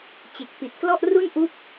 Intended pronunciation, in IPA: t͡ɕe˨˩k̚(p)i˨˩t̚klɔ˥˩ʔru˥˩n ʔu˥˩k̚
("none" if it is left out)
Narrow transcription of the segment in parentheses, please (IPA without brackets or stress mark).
p